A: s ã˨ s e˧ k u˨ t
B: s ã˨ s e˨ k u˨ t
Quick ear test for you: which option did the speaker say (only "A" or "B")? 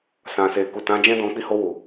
B